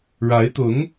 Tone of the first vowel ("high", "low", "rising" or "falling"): rising